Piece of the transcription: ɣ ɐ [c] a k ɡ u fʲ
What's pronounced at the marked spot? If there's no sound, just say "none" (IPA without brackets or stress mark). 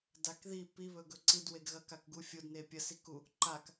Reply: k